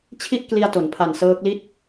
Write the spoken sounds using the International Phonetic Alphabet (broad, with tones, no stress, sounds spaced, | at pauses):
t͡ɕʰ i˥˩ ʔ k l i˧ a̯ t o˩˦ n pʰ a˨˩ n s ɤː˦˥ k̚ l i˥˩ t̚